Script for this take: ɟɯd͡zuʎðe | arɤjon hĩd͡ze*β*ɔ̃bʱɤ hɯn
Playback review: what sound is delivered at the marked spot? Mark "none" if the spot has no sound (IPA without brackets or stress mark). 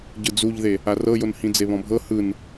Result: β